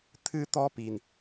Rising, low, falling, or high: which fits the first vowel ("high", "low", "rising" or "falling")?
high